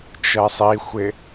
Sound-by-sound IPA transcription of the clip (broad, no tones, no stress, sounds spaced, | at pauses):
t͡ʃ ɜ sˤ i xʷ ɪ